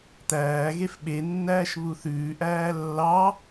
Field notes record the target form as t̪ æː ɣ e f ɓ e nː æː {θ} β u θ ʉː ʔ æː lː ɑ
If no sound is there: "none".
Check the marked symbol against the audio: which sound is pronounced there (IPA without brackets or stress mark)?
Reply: ʃ